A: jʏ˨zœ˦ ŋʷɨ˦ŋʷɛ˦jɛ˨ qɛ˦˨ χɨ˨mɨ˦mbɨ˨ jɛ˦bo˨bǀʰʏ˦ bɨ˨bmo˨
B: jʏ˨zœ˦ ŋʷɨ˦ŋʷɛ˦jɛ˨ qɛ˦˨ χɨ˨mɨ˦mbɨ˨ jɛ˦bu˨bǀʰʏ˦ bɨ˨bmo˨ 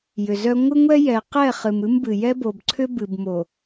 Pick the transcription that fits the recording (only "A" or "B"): A